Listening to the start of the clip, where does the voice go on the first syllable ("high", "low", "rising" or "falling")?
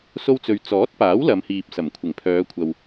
high